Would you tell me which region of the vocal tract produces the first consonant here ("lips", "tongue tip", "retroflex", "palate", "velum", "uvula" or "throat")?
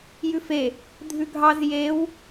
palate